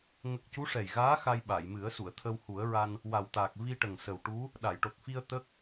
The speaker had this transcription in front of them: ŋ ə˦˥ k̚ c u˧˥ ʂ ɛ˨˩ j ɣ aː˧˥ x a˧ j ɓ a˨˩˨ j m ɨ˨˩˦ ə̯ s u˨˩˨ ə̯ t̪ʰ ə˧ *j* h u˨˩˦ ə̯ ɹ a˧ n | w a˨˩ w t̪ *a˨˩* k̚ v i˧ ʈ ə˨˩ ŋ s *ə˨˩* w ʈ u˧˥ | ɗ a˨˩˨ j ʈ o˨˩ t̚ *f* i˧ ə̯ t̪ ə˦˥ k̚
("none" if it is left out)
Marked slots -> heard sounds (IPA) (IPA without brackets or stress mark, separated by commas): w, aː˨˩, ə˨˩, f